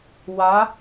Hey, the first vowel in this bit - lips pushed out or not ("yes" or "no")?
no